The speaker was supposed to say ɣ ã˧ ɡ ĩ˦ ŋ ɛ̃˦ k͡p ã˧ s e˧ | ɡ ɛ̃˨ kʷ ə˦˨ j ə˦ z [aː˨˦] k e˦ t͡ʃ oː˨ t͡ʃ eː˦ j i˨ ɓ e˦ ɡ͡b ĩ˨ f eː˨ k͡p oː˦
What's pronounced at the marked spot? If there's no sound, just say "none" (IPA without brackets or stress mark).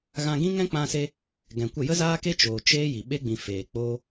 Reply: aː˦